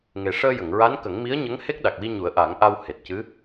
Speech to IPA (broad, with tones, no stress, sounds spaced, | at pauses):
ŋ e˨˩ ʂ əː˧ j ə˨˩˨ ŋ ɹ a˧˥ n k ə˨˩˦ ŋ m i˧˥ ə̯ ɲ ə˧˥ ŋ h e˦˥ k̚ ɗ a˨˩ k̚ w i˧ ɲ u˨˩˦ ə̯ ʔ a˨˩˦ ŋ ʔ a˧ w h e˨˩ t̚ c ɨ˧˥